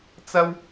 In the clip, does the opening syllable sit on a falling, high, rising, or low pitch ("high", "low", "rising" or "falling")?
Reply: high